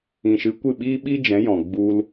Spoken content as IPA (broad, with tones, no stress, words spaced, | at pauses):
ĩ˨ʃɨ˨˦ kʷɨ˦˨ ɓiː˦ ɓi˦d͡ʒɛ̃˨˦jɔ̃˨ ɡ͡bu˧l